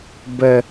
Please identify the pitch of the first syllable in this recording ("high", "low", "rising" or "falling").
low